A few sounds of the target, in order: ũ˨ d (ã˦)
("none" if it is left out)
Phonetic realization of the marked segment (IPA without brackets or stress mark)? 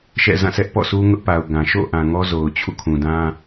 ã˦